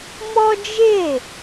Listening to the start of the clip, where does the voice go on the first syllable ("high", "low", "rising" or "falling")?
high